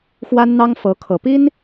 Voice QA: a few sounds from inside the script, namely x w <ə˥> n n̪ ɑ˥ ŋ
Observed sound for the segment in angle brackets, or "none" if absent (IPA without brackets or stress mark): a˥